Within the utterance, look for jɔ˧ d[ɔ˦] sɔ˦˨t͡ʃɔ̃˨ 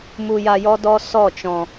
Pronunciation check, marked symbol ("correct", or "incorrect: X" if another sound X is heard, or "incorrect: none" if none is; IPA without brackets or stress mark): correct